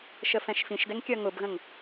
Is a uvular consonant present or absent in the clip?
absent